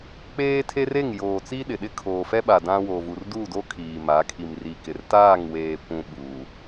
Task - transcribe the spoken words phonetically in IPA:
k͡p eː˦ tʰ e˦ r e˦˨ ŋ j oː˨ t͡s i˦ ɗ ɪ˨ ɗ ɪ˦ kʰ oː˨ f ɛ˦ ɓ a˨ d ã˦ w o˨ v u˨ r d u˦˨ d o˦ kʰ iː˨ m a˨˦ kʰ i˨ m r i˨ k ɪ˨ r t aː˦˨ ŋ w eː˨ kʷ ũ˨ ɓ uː˨

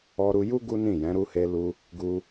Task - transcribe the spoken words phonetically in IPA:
ɔ˧ ɾ u˧ j u˦ ɡ u˦ n ĩ˦˨ j ɛ̃˨˦ ɾ u˧ h e˧ l u˧ | ɡ u˧

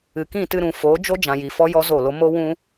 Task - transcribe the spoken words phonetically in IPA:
ɨ˨ k ĩ˦˨ t ɨ˧ ɾ ũ˨ f oː˨˦ d͡ʒ o˦ d͡ʒ ã˧ j i˧ f ɔ˦ j ɔ˦ z o˦˨ l o˦ m o˦ w ũ˦

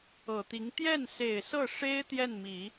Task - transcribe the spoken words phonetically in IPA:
ɤ˨˩ t̪ i˧˥ ŋ t̪ j ɛ˥˩ n s e˨˩ ɪ̯ s ɤ˥˩ ʂ e˥ ɪ̯ t̪ j ɛ˥˩ n m i˨˩˦

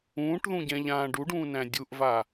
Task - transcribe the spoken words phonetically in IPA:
ũː ʈ ð ũ ɟ ɛ̃ ʎ ãː ɖ u ɖ ũː n æ̃ dʲ u ʔ v a

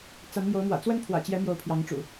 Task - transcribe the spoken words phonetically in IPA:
t͡s a˨˦ n m j o˨˦ ʊ̯ m w ä̰˨˩ t͡s w ə˦ n pʰ w ä̰˨˩ t͡ɕ j ɛ˨˦ m j o˨˦ ʊ̯ pʰ j ɑ˨˦ ŋ ʈ͡ʂ ṵ˨˩

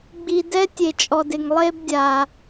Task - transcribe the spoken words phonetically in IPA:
ɡ͡b i˨ d ɛ˦ tʲ e˨ t͡ʃʼ ɔ˨ d ɪ˨ ŋ lˠ e˦ b dʲ a˨

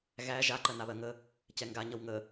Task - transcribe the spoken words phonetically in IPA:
ɣ æ ʒ a ǃ ɜ n a β ɜ ŋ ə | c ɛ ŋ ɡ a ɲ ʌ w ŋ ə

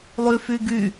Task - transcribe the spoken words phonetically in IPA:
lˠ y f y ɡ y

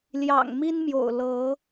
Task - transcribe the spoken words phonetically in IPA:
l j ɑ̰˨˩ ŋ m i˦ n m j o̰˨˩ ʊ̯ l ɤ˨˦

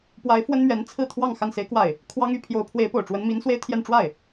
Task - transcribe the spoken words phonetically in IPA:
p w a˧˥ ɪ̯ f w ə˥ n m ɥ ɛ˧˥ n t͡sʰ ɹ̩˥˧ t̪ʰ w ɑ˥˧ ŋ x a˥˩ n s e˥ ɪ̯ k w a˥˩ ɪ̯ | kʰ w ɑ˥ ŋ y˧˥ pʰ j o˧˥ ʊ̯ pʰ w e˧˥ ɪ̯ p o˨˩ ʊ̯ ʈ͡ʂ w ə˧˥ n m i˧˥ n s w e˥ ɪ̯ t̪ʰ j ɛ˥˧ n ʈ͡ʂ w a˥˩ ɪ̯

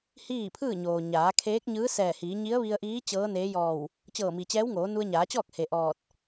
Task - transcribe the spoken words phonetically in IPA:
h iː˥˨ pʰ ɯː˥˨ ɲ oː˩ ɲ aː˩˧ kʰ eː˧˥ k̚ ɲ ɯː˧˥ s ɛː˧˩ h iː˩˧ ɲ i˧˥ ə̯ ʋ i˧ ə̯ ʔ iː˧˥ t͡ɕ ɤː˧˥ n eː˧˥ j ɔː˧˩ w | t͡ɕ ɤː˧˩ m i˩ t͡ɕ ɛː˧˥ w ŋ oː˩˧ n u˧ ə̯ ɲ aː˩˧ t͡ɕ ɔː˥˨ k̚ h e˩ ʔ ɔː˧˩ t̚

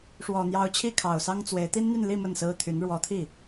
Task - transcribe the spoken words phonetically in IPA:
ʂ w ɔ˨˩ n̪ j ɑ˧˥ ʊ̯ t͡ɕʰ i˥˩ kʰ ɑ˨˩ ʊ̯ s ɑ˥ ŋ t͡s w e˧˥ ɪ̯ t̪ i˥ n n̪ y˥˧ n l i˥˧ m ə˥˩ n s ɹ̩˥ t̪ʰ y˧˥ n ɻ w ɔ˧˥ t̪ʰ i˥˩

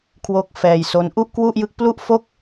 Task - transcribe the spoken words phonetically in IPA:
kʰ w oː˦˥ k̚ f ɛː˧ j s o˦˥ n ʔ u˥˩ ʔ k w u˥˩ ʔ j ɯ˦˥ k̚ p l u˥˩ ʔ f o˥˩ k̚

